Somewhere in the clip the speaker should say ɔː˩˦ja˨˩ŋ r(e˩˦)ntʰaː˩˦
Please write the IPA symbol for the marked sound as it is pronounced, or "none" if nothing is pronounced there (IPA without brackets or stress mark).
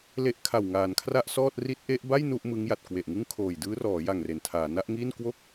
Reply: e˩˦